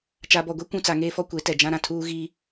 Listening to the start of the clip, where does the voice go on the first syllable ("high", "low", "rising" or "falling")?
low